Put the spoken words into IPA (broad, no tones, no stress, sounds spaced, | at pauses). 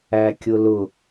æ kʲ ʊ l ʊ